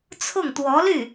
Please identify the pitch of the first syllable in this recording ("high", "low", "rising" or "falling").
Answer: falling